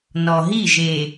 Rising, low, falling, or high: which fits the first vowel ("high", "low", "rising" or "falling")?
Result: low